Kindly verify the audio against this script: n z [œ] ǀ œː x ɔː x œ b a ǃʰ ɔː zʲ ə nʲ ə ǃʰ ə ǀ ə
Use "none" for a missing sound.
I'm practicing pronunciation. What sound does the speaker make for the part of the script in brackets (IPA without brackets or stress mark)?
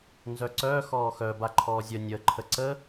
œ